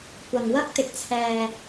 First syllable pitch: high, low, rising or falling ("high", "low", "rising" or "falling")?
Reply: low